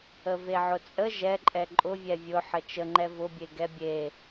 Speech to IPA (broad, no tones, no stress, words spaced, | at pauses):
əveʕʊt͡sʼə ʒɛǃʼɛ ǃʼʊvʲɛ vʲʊ ħət͡ʃəŋ͡ǃɛ vʊbʲe ɡɛbʲe